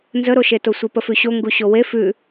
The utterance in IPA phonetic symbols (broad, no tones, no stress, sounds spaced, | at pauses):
n z ə ɾ o ʃ e t o sʷ i p ə f ʉ ɕ o ŋ ɡ u ɕ o w e f ʉ